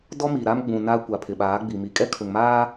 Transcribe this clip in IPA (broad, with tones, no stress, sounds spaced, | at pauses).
d ɔ˦ m i˨ ɾ a˦ m ɡ͡b ũ˨ n aː˦ kʷ a˨ pʰ ɪ˨ ɓ aː˨˦ ɡ͡b i˨ m i˨ kʼ ɛ˦ kʰ ʊ˨ ŋ m aː˦